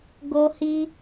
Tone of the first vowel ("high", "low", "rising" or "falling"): high